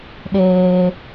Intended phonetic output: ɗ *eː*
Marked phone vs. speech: correct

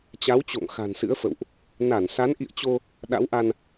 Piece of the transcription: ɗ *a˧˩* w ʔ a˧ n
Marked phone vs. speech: incorrect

